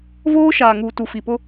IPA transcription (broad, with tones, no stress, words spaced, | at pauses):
voː˦ ʃaː˨ŋuː˨tu˨ fi˨pʊ˦